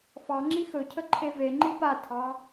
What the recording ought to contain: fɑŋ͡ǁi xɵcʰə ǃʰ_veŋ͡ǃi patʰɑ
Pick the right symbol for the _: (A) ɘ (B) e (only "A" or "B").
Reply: B